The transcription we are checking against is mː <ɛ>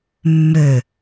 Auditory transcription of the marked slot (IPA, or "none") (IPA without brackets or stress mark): ø